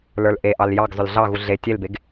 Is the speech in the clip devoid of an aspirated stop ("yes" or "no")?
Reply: yes